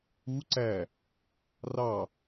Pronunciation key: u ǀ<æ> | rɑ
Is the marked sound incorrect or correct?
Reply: correct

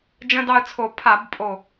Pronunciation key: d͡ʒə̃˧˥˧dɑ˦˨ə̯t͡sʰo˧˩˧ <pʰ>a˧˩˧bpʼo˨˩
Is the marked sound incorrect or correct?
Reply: correct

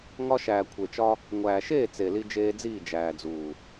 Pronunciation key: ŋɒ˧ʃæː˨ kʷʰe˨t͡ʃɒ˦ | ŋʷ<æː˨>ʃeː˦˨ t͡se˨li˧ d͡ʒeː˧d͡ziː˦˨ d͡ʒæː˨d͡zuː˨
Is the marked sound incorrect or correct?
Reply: correct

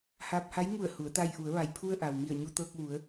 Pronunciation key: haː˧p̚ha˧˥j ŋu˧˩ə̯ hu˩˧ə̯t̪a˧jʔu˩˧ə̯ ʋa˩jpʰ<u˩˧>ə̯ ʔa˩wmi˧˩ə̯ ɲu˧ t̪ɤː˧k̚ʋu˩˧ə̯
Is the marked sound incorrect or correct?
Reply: incorrect: u˧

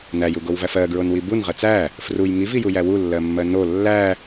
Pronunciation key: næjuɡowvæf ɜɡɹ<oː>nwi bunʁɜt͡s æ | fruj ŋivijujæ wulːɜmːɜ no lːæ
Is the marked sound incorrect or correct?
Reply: incorrect: o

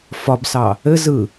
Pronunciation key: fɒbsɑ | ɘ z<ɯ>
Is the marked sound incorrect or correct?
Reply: correct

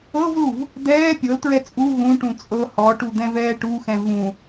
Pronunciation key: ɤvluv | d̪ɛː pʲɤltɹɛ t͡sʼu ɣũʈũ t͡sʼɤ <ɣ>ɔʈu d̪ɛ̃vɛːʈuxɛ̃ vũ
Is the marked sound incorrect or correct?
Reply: incorrect: h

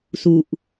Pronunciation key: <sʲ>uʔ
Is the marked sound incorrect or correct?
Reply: incorrect: s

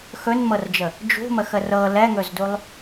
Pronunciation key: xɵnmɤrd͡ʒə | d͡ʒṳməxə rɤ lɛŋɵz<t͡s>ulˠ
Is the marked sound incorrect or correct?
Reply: incorrect: d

